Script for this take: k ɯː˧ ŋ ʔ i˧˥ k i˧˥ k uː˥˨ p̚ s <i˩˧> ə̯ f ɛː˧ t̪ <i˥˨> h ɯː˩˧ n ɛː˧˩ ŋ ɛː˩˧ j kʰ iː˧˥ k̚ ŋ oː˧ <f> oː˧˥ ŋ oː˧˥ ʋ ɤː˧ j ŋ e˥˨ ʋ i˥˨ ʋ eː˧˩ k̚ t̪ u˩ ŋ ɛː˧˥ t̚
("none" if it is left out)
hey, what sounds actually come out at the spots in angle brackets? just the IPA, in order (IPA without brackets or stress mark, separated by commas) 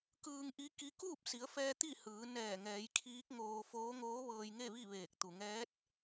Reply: i˩˧, i˥˨, f